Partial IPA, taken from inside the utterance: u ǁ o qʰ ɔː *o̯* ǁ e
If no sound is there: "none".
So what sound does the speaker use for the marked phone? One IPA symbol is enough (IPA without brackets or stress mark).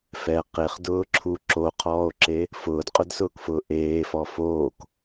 o̯